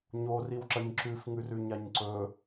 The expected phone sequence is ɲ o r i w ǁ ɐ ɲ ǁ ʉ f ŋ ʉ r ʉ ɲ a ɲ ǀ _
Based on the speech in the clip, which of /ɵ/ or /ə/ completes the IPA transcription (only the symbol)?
ɵ